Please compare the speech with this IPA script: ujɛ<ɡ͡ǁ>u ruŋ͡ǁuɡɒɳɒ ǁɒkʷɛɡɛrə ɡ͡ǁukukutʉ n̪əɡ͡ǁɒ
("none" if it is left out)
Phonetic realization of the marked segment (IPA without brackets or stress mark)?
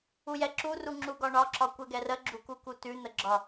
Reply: ǁ